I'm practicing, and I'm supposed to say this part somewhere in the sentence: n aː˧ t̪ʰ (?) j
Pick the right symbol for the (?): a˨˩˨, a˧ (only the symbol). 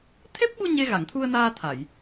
a˨˩˨